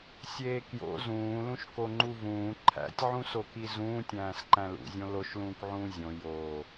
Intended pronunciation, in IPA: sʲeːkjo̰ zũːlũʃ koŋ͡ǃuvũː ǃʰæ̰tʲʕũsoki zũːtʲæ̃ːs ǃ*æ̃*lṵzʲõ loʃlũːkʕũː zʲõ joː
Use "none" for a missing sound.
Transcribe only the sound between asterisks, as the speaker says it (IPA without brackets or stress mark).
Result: æ̃